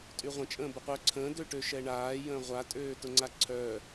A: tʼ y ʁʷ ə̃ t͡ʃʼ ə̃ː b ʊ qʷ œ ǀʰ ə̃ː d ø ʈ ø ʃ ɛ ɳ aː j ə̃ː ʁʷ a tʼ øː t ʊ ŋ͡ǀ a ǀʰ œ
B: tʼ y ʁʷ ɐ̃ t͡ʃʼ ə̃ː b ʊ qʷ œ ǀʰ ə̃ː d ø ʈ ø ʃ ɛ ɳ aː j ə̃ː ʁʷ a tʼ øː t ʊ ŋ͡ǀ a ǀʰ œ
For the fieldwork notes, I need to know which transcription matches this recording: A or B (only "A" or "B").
A